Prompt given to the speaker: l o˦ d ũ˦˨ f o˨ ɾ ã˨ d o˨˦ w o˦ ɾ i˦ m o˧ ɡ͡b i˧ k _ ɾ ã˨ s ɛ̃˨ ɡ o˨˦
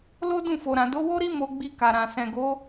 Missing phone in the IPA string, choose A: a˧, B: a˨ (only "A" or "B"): B